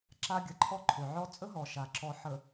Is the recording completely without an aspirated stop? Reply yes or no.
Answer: no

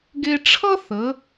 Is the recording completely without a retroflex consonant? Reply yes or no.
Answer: no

